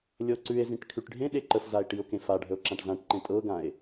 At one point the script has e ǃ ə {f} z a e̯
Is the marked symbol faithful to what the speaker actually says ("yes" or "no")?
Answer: yes